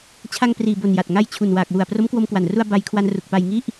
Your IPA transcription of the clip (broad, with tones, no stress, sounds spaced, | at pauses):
t͡ɕʰ a˧ ŋ p r iː˨˩ b o˨˩ n j a˨˩ t̚ ŋ a˦˥ j t͡ɕʰ u˨˩ n w aː˨˩ k̚ w u˨˩ a̯ p r o˦˥ m k w o˧ m k w a˨˩ n r u˧ a̯ b a˧ j kʰ w a˧ n r u˨˩ k̚ p a˧ j ŋ i˥˩ ʔ